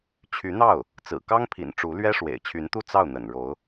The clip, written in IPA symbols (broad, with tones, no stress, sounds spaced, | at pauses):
t͡ɕʰ y˧˥ n̪ ɑ˥˩ ʊ̯ | t͡s ɹ̩˨˩ k ɑ˥ ŋ pʰ ḭ˨˩ n ʈ͡ʂ u˧˥ l ɥ ɛ˥ ʂ w ḛ˨˩ ɪ̯ t͡ɕʰ y˧˥ n t̪ u˥˧ t͡s ɑ˥˩ ʊ̯ n̪ ə̰˨˩ n ɻ o˧˥ ʊ̯